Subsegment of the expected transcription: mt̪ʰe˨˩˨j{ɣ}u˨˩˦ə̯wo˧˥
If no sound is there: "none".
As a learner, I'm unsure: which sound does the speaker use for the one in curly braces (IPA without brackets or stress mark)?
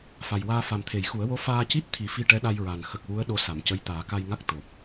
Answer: x